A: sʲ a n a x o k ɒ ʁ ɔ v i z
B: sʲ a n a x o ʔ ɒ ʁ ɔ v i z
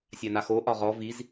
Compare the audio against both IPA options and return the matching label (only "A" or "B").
B